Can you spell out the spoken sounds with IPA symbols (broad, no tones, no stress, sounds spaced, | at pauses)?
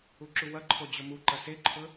u ǁ u w ɐ ǃʰ o d͡ʑ ɵ m u ǃ ɐ s e ǃʰ ɵ